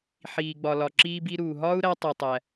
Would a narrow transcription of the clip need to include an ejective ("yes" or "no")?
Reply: no